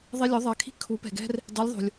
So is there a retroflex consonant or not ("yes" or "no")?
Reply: no